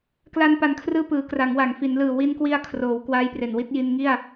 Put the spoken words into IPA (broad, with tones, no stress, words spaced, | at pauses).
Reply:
kla˧npa˨˩nkʰrɯː˧ pɯː˩˦kra˩˦ŋwa˩˦ŋ fi˩˦nlɯː˨˩ wi˧nkwi˧a̯ kʰroː˩˦w kwaː˦˥jpre˨˩nwi˦˥t̚ ji˧nŋi˥˩a̯